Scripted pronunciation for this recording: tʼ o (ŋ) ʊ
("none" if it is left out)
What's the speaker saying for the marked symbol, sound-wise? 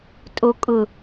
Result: kʼ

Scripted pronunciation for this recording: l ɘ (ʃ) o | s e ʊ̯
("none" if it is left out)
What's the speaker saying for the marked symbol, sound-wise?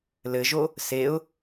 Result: ʒ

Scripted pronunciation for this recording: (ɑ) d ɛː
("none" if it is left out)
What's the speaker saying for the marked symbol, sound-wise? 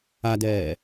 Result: a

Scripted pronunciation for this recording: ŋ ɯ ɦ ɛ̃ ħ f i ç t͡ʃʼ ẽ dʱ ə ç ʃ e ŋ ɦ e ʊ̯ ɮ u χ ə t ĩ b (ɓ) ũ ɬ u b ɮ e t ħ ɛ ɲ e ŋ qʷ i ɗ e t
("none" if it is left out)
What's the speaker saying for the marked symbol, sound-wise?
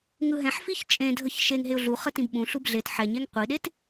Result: ɓ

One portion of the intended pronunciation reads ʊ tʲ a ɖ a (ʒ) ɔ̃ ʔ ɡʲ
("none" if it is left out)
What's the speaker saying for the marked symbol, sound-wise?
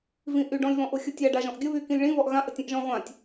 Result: ʒ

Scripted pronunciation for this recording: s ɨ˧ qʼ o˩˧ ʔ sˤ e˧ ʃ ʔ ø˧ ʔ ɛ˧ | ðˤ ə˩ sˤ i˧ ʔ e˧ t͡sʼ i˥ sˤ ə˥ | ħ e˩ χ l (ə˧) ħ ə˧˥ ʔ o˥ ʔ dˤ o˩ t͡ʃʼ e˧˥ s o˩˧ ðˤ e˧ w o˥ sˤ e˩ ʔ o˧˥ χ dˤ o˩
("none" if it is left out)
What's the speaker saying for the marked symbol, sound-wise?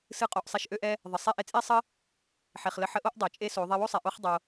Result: ə˧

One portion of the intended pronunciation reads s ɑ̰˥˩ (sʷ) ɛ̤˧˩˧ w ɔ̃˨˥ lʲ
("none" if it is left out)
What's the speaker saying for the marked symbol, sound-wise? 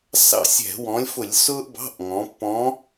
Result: sʲ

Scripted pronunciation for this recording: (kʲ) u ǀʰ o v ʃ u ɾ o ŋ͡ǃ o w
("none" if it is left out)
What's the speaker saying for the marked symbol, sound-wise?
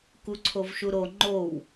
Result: k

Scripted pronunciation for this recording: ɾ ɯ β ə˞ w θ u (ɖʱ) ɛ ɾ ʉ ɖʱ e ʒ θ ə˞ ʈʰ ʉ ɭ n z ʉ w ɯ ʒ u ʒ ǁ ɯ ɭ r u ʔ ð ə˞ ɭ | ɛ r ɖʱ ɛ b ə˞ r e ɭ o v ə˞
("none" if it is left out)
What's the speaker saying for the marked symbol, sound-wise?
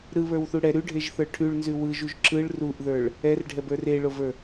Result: ɽ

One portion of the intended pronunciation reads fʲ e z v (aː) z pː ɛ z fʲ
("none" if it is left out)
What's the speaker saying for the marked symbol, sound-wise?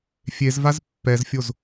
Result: a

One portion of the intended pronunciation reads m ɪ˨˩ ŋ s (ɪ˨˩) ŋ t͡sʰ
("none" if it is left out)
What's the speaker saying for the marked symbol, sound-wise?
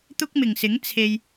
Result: ɪ˨˥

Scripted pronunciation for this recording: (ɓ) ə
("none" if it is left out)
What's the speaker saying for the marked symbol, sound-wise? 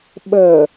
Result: ɓ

